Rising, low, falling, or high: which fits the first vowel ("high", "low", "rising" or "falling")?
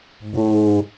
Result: low